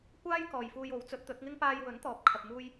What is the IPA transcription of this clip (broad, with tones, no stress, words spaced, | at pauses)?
kʷaː˥j kɔː˨jfuː˧j o˨˥wt͡sɵ˨˥t̚ t̪ɵ˨˥t̚ŋɪ˥ŋ paː˧jwɵ˨˥nt̪ɔː˨˥p̚ kʰɐ˧p̚muː˥j